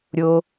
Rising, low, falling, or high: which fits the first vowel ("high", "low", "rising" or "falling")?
low